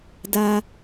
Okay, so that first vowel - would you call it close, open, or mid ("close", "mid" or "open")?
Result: open